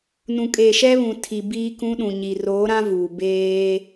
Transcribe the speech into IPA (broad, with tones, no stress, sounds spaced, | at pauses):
n ũ˨ kʼ eː˨ ʃ ɛ˦ β ũ˨ tʰ i˨ b iː˦ k ũ˦ ɗ ũ˨ ɲ i˨ r oː˨˦ ɾ ã˦ v uː˨ b eː˦